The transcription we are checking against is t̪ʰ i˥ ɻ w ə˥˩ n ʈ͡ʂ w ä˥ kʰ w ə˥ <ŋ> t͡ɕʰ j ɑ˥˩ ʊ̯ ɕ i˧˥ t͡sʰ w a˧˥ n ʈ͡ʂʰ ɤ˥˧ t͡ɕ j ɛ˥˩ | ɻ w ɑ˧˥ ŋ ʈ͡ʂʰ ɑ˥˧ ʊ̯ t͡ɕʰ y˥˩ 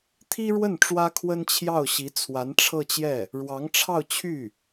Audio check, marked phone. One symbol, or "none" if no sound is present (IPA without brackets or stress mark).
n